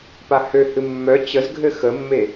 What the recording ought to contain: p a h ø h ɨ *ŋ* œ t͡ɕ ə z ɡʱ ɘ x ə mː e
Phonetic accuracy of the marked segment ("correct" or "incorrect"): incorrect